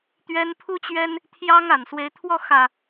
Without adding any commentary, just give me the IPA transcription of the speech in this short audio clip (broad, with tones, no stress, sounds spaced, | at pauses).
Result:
t̪ ɥ ɛ˦ n pʰ u˦ t͡ɕ ɥ ɛ˦ n | t̪ʰ j ɑ˦ ŋ a˨˩ n s w e˨˦ ɪ̯ t̪ʰ w ɔ˥˨ x ä˨˩